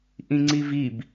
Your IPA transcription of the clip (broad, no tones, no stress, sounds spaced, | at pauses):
ʔ ĩ ŋ͡ǀ i v i b